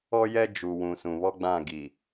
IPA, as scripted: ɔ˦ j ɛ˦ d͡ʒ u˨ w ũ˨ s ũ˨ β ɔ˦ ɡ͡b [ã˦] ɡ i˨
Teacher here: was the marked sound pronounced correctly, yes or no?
no